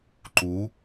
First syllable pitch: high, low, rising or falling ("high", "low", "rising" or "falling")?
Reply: rising